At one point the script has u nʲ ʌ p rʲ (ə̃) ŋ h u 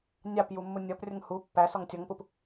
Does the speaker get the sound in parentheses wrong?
yes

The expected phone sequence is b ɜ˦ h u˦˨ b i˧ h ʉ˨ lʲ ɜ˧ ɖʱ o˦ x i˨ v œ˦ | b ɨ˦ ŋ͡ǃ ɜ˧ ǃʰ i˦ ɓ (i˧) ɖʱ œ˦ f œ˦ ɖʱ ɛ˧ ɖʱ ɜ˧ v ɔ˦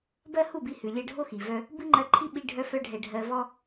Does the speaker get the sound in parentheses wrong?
no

